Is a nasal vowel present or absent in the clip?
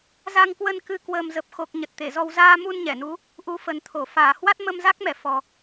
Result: absent